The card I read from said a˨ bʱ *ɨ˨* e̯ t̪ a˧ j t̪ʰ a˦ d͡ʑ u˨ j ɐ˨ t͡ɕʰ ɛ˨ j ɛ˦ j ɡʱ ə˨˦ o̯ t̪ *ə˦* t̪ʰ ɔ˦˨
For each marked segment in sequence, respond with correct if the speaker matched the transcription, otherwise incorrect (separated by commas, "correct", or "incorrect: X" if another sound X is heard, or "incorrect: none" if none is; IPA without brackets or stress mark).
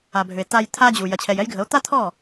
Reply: incorrect: ʏ˨, incorrect: a˦